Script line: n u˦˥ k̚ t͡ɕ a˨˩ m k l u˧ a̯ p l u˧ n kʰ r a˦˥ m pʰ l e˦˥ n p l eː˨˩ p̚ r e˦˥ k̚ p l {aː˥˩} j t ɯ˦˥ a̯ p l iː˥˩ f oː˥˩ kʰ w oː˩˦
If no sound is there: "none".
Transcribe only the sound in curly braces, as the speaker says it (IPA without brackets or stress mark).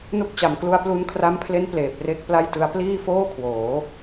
a˥˩